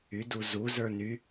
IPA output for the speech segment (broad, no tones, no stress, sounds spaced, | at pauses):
y d u z u z ə˞ n y